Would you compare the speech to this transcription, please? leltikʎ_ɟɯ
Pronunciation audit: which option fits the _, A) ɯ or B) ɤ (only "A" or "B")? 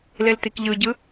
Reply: A